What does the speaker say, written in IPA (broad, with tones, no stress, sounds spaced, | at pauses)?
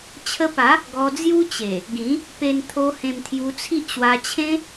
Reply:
t͡ɕʰ ə˧ p a˨˦ | ɡ ɔ˧ d͡z j u˦ t͡ɕ e˨˩ | ɡ ĩ˨˦ | p e˧ n t̪ʰ o˧ h ẽ˧ m t̪ʰ j u˧ t͡sʰ i˦ ʔ ɕ w a˧ t͡ɕʰ ẽ˦